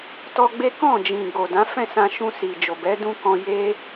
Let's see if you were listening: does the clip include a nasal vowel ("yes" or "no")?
yes